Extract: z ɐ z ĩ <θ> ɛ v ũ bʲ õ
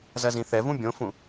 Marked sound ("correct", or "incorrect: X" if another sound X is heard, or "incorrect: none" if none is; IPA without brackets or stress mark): correct